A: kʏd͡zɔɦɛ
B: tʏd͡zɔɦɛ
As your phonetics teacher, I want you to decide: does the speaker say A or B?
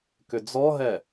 A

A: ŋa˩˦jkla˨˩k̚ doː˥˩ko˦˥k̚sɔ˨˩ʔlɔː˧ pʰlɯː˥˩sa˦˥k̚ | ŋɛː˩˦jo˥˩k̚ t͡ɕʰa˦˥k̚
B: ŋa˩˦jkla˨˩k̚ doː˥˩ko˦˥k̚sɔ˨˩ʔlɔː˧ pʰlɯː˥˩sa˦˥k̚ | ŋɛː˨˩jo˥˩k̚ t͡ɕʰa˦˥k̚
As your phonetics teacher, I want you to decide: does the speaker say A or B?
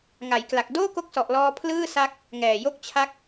B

